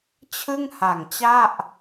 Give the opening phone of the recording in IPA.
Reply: t͡ɕʰ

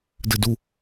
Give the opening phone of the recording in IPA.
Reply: d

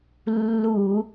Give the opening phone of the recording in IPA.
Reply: lː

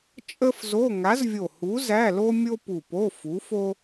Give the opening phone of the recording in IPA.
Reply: t͡ʃʼ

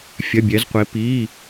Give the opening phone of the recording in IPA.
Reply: fʲ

